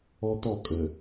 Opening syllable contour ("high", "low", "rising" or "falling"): high